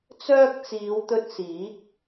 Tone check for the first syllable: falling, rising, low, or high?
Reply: high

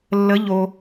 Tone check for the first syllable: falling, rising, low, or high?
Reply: rising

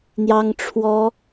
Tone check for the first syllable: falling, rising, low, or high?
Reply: high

